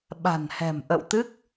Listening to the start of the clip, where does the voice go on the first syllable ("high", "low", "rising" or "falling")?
low